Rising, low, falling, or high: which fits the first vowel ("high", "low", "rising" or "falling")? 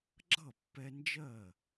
falling